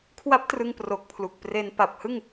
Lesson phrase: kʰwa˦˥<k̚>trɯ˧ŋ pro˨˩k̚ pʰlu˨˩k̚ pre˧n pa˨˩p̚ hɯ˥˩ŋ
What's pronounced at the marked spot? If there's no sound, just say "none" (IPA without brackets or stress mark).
p̚